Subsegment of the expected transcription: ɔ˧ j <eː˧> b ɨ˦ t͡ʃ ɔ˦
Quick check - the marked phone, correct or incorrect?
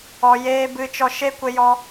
incorrect